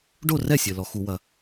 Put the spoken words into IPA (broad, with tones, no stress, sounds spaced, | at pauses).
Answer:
ɖ o˥˩ r ɛ˥˩ sʲ ɘ˩ l ɔ˩ x u˧˩˧ w ɐ˩